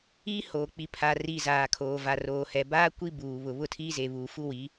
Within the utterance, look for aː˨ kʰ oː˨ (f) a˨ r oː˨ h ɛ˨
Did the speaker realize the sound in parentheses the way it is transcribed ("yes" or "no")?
no